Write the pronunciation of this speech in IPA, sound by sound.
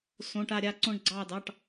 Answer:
s õ˩˧˩ ʈ a˧˩ ɾʲ a˧˩ ǀ õ˧˩ ɳ ɡ͡ǀ ɑː˧˩ d ɑ˩˧˩ ʈ

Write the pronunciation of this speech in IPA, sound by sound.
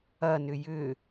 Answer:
ɐ n ʏ j ʏ

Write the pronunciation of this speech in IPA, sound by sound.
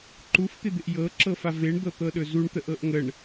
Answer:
ǃ u f t̪ ɪ d̪ ɪ ʔ j ɤ ǁ ɤ f a v e ɳ d̪ ɤ t̪ ɤ ɗ ɵ z u ɳ t̪ ə ʔ ɤ ʔ ŋ ə ɳ

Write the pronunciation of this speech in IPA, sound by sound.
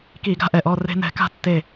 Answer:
k i˧˩˧ ɡ a̤˨˦ ʔ ɛ˩ ʔ ɔ˧˩ r e̤˦ n ɛ̤˨˦ k a̤˥˨ tː e˧˩

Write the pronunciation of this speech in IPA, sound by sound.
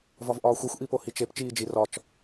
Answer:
v ɒ v ʔ ɒː xʷ i xʷ ʔ i p o h i t͡ʃ e p t͡ʃ iː d͡ʒ i r ɒ t͡ʃ

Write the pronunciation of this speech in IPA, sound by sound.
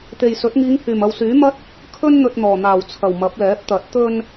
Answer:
t̪ e˨ j s ɵ˨˥ t̚ ŋ iː˨˧ ŋ h yː˨˩ m ɐ˨ w s yː˨˥ m ɐ˥ t̚ | kʰ ɵ˥ n n̪ ɵ˧ t̚ n̪ ɔː˨˩ n̪ aː˨˩ w t͡sʰ ɐ˨˩ w m ɐ˨˥ p̚ l ɛː˨˥ p̚ t̪ ɐ˨˥ t̚ t̪ ɵ˧ n

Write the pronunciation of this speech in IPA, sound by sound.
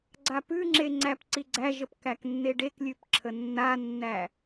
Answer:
ɡ͡ǀ a p ʉ ŋ͡ǁ e ŋ͡ǀ æ p ǀ i ɡ͡ǀ æ ʒ ə p k æ k nː e ɖ e k lʲ ʉ p ǁʰ ə nː a nː æ

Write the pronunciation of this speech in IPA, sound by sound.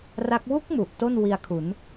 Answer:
r a˦˥ k̚ w u˦˥ k̚ m u˨˩ ʔ t o˥˩ n w i˧ a̯ kʰ u˩˦ n

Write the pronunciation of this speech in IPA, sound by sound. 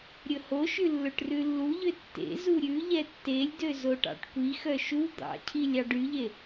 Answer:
ɾʲ ɵ h o ʃ ʉ lː ɵ ʈ r ʉ lː u ʎ ø tː ḛ z u ɾʲ ʉ ʎ ɛ tː e lʲ d ø z o ʈ ɑ̰ ʈ kʷ i x œ ʃ u d̪ ɑ̰ cʰ i lʲ ɑ ɖ y ʎ e

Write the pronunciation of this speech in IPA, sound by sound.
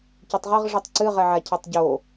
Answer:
c ɯ tˤ ʁ ə ʁ ʐ ɯ tˤ ǀ ɨ ʁ ɛ ʕ a cʰ ɛ tˤ ɟ o

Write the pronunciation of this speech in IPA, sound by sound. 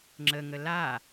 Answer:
ŋ͡ǁ ə ŋ ə l a

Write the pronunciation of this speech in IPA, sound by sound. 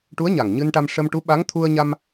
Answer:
ʈ u˧˥ ə̯ ɲ a˨˩ ŋ ɲ ɨ˧ n ʈ a˧ m ʂ ə˧ m ʈ u˧˥ ɓ a˧˥ ŋ t̪ʰ u˧ ə̯ ɲ a˧ m

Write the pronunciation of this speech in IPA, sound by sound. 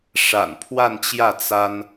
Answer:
ʂ a̰˨˩ n pʰ w a˥˧ n t͡ɕ j ä˥˩ t͡s a˥ n

